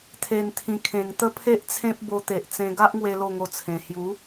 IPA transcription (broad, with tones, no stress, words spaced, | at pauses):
t̪ʰe˨˩nt̪ʰĩ˨˩ kʰẽ˨˩ŋt̪ə˦pʰe˦ʔt͡sʰẽ˦p̚ bo˧t̪e˨ʔt͡sẽ˧ ɡa˦ʔŋwe˧ lo˥˧ŋo˧t͡sʰẽ˨˩ hju˨˦